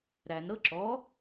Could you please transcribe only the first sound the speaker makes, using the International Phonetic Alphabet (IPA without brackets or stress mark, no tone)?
ɾ